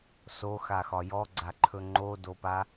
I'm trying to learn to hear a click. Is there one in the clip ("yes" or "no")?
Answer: yes